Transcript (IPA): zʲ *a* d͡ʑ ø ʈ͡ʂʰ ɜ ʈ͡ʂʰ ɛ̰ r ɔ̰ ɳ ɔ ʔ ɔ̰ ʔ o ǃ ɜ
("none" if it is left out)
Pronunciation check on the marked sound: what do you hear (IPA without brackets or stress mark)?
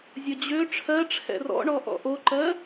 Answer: ə